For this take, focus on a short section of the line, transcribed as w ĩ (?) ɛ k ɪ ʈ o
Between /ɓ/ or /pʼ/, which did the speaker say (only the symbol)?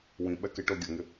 ɓ